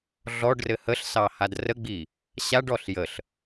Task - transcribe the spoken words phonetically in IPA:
ɮɔɖrɘ həɬsɑhad rəɡ͡bi | ɕaɖɔɬ jəɬ

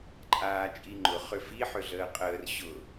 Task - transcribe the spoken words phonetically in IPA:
ǃʼaːt͡ʃʼiŋ͡ǃʊ χʏfi ħʏɮəːqʼəːr ɕʊ

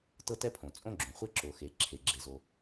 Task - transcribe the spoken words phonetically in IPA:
tɤ˥tɛ˥pʰõ˩ t͡sʼõ˥ɡ͡ǁõ˩χʷe˥ ǁo˩xe˩ ǁʰe˩ɡ͡ǁe˩zo˩

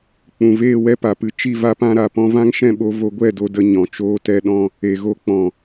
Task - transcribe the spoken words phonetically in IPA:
k͡pũ˨veː˦˨wɛ˦ pa˨pɨ˧ t͡ʃi˦˨va˦pã˦ɾa˨ pɔ̃˧vã˦ŋʃɛ̃˦˨ɓo˧ vo˧ɡʷɛ˦˨do˧ də˧ ɲɔ̃˨t͡ʃoː˦tɛ˦ɗɔ̃˦ | e˨ɣo˧ k͡pɔ̃˨

